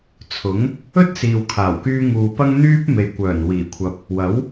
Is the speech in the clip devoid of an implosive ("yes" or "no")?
yes